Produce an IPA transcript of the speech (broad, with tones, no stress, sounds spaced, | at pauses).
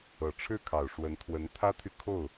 ɤ˨˩ ʈ͡ʂʰ ɻ̩˥˩ kʰ ɑ˨˩ ʊ̯ ʂ w ə˧˥ n t̪ʰ w ə˧˥ n t̪ʰ ä˥ t̪ʰ y˨ kʰ o˥˩ ʊ̯